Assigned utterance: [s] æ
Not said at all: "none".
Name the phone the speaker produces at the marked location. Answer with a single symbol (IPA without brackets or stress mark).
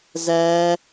z